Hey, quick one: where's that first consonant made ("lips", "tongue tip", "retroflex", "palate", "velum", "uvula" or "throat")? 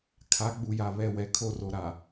velum